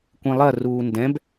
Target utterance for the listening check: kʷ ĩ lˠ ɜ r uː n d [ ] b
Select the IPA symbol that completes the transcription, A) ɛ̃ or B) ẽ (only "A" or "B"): A